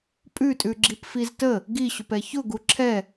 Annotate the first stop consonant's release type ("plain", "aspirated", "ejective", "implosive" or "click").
ejective